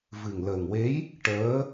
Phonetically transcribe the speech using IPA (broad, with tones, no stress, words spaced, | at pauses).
vɨ˨˩ŋləː˨˩ŋwe˧˥j | ʈəː˧˥